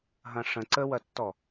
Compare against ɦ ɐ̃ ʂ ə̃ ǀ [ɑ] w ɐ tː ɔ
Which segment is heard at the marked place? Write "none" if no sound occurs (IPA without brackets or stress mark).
ə